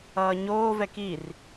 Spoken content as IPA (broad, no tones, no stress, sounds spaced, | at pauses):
ʌː ɲ oː v ɛ k i r